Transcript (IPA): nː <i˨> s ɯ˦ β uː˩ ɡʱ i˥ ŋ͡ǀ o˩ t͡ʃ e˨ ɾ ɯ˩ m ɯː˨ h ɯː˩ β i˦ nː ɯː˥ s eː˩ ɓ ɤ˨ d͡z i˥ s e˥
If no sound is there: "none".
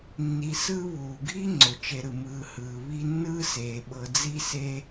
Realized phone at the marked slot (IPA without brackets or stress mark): i˨